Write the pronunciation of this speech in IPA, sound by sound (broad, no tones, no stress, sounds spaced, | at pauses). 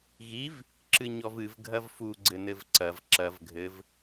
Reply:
ɣ i v | ǁ ɨ ɲ ɔ v ɨ v ɡʱ ɐ v f u ɡ͡ǀ ɘ n ɘ v ǀ ɐ v ǁ ɐ v ɡʱ ɘ v